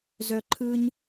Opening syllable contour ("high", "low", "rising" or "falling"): low